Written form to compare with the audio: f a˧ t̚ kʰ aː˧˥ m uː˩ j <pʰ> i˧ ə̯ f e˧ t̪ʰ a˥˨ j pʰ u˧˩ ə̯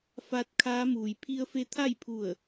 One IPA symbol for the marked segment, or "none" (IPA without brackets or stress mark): pʰ